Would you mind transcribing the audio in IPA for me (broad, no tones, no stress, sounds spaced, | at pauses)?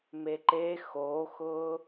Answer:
m e ǃ e x o x ʊː